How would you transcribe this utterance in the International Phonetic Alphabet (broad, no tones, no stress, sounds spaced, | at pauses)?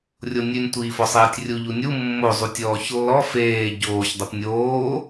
rʲ o nʲ ʉ nʲ tʷ iː f ɔ sˤ eː tʲ rʲ u ʎ u nʲ u mː o zˤ u tʲ ɔː ç lː ɔ f eː ɟ oː ç dˤ u p nʲ oː